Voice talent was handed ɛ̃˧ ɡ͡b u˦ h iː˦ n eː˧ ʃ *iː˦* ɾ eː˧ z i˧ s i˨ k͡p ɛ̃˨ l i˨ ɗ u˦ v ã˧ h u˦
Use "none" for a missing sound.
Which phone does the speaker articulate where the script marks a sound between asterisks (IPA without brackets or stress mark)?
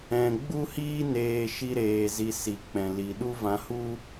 i˦